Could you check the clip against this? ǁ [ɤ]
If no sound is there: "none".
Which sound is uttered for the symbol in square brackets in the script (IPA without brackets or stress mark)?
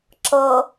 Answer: ɤ